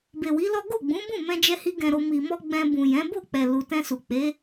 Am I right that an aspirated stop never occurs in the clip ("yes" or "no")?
yes